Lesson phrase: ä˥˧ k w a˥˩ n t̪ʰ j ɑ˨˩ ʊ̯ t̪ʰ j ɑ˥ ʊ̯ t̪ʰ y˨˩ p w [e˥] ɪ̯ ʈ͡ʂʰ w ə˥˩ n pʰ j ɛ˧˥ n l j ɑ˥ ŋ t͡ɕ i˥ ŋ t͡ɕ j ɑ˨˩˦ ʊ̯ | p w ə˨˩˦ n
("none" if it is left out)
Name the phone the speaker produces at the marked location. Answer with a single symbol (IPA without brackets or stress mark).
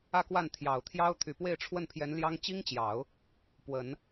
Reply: e˥˧